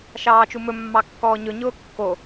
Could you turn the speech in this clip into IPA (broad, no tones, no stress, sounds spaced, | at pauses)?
ʃ ɑː t͡ʃ u m ɵ mː ɑ kː ɔː ɲ ɵ ɲ ʊː kː o